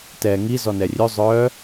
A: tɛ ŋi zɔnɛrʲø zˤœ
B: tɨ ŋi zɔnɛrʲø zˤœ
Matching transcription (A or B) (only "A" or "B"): A